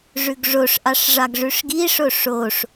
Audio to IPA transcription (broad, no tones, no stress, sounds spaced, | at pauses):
ʐ ʉ ɡ ʐ o ʂ ʔ ɑ ʂ ʐ ɑ ɡ ʐ ʉ ʂ ɡ i ʂ o ʂ o ʂ